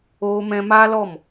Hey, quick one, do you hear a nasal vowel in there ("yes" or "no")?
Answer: yes